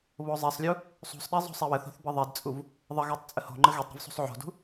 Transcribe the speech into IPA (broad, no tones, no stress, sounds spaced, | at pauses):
β o zˤ e sˤ lʲ u | sˤ ṳ sˤ ɗ e zˤ o̤ sˤ e w ə θ o̤ θ b ə ðˤ e d t͡sʼ u v | ðˤ ə ɣ ɛ tˤ t͡sʼ ə h o̤ ŋ͡ǃ ə ɣ e tˤ ɾ ṳ v sˤ ṳ sˤ ʕ o̤ d ṳ